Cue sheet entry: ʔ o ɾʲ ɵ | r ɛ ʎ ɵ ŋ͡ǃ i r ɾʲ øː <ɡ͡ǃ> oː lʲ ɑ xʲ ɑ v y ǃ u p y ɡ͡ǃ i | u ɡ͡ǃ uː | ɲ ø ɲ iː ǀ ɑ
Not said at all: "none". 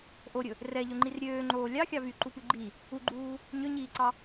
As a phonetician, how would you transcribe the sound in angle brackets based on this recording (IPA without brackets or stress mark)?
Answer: ŋ͡ǃ